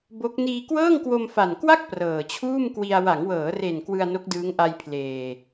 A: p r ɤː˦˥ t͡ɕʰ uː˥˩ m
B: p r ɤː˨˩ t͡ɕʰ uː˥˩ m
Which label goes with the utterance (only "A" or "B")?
B